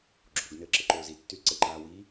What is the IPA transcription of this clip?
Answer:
ɡ͡ǁoɡ nɘːǁɘǃoːzi tːylǀɘ ǃaːwi

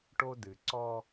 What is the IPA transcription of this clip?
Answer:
ʈo˦ dɨ˨ ǀɔ˦

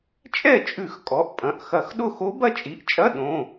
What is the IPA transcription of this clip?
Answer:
t͡ʃʼɛ˥˩t͡ʃʼʉ˧˩˧x kʼɔ˩˧˩ʔpʼɐ̃˩˧˩ʔxɐ˧˩˧xɗʊ˥˩ xo˧˥bɐ˥˩t͡ʃʼi˩˧˩ʔt͡ʃʼɐ˧˥˧ ɗõ˩˧˩

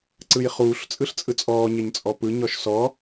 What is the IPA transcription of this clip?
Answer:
ǀɯjχuːɬ t͡sʼɯɬt͡sʼɯt͡sʼɔː ɲeɲt͡sʼɔpɯ ɲɔʃsɔ

